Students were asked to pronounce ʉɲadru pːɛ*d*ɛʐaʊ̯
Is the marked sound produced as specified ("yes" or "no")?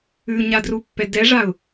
yes